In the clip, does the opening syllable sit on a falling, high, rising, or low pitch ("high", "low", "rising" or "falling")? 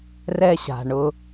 high